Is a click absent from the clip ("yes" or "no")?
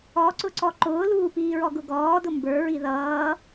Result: no